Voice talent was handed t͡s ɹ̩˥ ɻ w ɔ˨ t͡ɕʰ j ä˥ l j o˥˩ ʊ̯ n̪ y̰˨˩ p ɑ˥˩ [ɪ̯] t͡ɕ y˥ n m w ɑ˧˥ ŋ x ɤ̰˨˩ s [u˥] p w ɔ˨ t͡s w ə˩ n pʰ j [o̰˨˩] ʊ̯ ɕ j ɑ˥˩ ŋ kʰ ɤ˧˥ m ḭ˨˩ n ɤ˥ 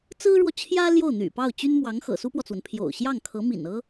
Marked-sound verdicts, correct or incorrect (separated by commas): incorrect, correct, correct